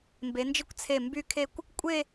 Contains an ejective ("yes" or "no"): yes